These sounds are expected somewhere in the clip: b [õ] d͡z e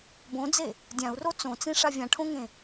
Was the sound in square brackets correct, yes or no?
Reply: yes